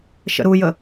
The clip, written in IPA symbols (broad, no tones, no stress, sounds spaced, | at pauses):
ʃ ə̰ ɾ u j ə